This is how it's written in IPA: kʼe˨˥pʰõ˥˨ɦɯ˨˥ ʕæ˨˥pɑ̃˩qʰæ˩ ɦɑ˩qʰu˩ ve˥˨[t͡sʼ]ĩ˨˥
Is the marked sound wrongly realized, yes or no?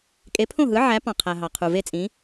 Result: no